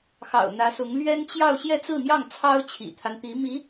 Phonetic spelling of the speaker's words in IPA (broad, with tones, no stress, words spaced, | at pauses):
xɑ̰˨˩ʊ̯n̪ä˧˥sʊ˧˥ŋ lɥɛ˥n t͡ɕjɑ˥˧ʊ̯ ɕjɛ˥˧t͡sɹ̩˥˧n̪jɑ˥˩ŋ t͡sʰɑ˥ʊ̯t͡ɕʰḭ˨˩t̪ʰa˦nt̪i˧˥ mi˧˥